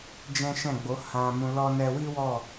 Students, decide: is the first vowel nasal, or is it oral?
nasal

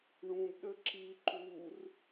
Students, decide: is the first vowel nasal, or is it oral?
nasal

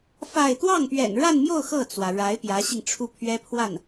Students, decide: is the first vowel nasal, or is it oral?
oral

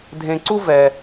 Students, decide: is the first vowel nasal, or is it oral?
nasal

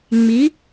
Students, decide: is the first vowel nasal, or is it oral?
oral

